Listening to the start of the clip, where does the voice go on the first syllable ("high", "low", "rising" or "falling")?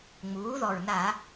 rising